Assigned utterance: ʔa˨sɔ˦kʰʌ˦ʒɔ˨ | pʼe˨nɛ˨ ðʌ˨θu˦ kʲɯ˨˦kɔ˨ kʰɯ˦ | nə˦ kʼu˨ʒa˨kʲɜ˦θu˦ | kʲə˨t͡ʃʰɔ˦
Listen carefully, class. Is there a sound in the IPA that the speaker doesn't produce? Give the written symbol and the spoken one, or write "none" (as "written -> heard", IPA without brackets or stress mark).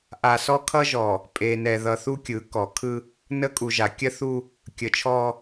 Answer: none